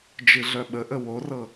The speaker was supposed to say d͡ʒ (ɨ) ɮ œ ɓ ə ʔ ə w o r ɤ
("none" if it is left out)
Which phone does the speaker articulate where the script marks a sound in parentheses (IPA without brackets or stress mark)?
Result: ɨ